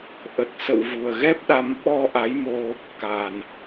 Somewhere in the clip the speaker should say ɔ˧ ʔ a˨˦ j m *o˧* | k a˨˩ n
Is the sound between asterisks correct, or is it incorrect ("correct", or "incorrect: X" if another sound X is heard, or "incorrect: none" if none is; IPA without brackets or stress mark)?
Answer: correct